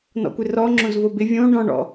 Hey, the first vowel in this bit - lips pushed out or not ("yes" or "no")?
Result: yes